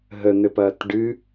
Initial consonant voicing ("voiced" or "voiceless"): voiced